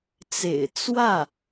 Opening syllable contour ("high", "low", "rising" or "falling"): low